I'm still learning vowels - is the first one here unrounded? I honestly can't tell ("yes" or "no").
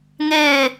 yes